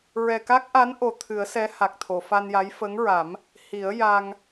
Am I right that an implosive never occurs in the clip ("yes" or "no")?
yes